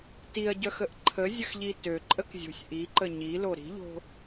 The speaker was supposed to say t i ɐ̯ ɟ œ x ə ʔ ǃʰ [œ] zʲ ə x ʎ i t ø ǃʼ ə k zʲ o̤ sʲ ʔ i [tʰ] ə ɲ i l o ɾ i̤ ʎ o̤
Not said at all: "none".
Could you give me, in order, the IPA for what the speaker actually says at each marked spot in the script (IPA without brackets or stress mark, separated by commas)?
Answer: ə, ǃ